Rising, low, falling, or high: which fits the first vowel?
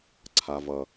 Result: low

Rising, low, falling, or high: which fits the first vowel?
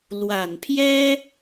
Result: low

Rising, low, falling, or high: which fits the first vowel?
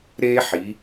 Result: high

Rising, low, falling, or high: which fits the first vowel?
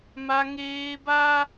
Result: high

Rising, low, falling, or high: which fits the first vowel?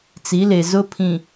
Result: rising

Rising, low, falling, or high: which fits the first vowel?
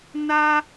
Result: high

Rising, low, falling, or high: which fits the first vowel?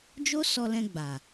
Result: high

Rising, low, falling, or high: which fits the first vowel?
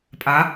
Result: rising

